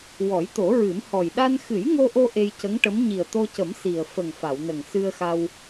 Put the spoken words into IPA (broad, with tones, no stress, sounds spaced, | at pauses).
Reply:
w ɔ˨˩˦ j t̪ o˨˩˦ ɹ ɨ˨˩˦ m h ɔ˨˩ j ɗ a˧ n x ɨ˨˩˦ j ŋ o˧ ʔ o˧ ʔ e˧ j c ə˧˥ ŋ ʈ ə˧˥ m ɲ i˨˩ ə̯ t̪ o˧ c ə˨˩˦ m s i˨˩ ə̯ f ə˨˩ ŋ f a˨˩˨ w n ə˨˩ ŋ s ɨ˧ ə̯ x a˧ w